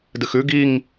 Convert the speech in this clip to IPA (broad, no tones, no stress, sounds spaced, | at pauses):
d ɨ x ʉ ɡ i ŋ